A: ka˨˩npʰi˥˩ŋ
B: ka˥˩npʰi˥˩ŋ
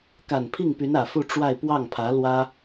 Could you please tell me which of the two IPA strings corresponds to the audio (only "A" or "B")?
A